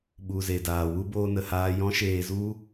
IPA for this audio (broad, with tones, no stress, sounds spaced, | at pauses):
ɓ u˨ z e˨ d aː˨ w u˦ b oː˦ n ə˧ h aː˦ j ɔ̃˦ ʃ eː˧ z u˦